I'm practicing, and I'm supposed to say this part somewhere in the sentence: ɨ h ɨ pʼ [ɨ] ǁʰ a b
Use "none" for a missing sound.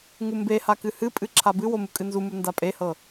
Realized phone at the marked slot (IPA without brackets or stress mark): ɨ